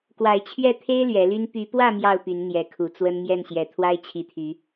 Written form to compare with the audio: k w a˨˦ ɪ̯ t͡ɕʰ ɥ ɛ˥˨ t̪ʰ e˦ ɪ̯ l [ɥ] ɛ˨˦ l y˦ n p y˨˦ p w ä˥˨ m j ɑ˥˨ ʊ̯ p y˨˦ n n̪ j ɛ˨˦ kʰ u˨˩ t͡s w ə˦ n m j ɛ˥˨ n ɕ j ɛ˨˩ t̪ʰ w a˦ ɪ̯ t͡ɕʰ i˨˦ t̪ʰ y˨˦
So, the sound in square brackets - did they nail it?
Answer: yes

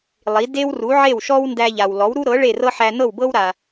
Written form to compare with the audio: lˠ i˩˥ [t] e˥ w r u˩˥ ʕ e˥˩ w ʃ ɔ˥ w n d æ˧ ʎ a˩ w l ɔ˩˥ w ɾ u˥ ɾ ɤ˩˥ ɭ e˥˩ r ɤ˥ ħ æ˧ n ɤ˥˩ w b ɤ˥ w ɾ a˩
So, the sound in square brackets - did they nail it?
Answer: no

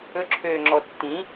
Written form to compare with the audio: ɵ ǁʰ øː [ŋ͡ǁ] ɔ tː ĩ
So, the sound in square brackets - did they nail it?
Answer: yes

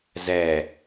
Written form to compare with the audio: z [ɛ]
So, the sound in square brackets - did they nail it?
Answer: yes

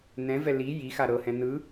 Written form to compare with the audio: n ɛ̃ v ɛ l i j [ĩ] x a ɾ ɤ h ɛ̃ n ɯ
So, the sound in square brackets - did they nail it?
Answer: no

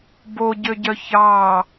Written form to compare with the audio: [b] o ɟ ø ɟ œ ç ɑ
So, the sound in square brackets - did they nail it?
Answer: yes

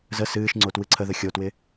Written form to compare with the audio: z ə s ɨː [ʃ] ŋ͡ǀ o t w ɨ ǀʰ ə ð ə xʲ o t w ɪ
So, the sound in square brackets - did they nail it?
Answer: yes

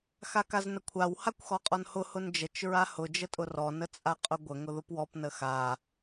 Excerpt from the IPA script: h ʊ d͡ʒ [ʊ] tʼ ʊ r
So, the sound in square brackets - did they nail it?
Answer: no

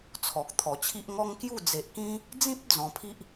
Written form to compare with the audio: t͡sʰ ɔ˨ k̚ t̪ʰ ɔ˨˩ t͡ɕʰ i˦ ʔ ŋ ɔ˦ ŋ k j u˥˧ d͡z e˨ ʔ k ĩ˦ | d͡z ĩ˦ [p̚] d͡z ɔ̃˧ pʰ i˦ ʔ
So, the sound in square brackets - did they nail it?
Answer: yes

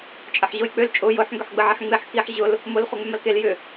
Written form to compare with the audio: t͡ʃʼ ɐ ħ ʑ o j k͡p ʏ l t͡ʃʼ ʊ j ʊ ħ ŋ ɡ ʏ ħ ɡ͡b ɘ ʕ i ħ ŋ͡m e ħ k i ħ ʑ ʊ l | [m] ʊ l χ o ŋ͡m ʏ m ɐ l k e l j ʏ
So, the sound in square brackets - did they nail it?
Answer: yes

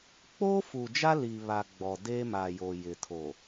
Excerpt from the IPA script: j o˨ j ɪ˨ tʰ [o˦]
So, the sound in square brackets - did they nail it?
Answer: no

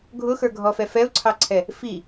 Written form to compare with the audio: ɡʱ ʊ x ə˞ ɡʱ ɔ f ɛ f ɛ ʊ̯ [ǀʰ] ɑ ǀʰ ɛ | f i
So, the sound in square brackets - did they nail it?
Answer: yes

